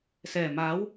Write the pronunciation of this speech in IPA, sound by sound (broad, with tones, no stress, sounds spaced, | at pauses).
s ɛː˨˩ m aː˨˥ w